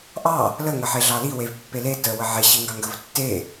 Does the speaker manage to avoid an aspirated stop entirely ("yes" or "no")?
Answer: yes